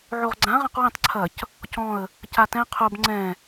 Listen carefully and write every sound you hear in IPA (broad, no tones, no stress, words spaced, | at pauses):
ʕoʁɡ͡ǀã ʁãqwĩtˤ ǀʰɐc | cɔ̃ə̯ | catɛ̃ qʰob ŋ͡ǀɛ̃